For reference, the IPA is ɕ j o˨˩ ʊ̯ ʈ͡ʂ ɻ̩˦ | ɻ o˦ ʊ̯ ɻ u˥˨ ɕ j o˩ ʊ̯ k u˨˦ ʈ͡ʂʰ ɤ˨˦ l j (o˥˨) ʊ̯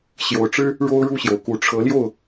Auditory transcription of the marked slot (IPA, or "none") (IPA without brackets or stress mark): o˥˨